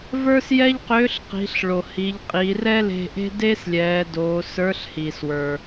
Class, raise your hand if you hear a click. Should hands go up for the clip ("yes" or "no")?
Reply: no